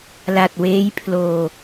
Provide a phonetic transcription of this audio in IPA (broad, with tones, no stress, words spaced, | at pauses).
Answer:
la˨˩t̚weː˦˥jpʰloː˨˩